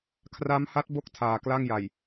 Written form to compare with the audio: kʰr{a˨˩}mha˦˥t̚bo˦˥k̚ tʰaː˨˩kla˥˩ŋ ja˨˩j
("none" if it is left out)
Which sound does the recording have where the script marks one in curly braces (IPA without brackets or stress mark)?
a˦˥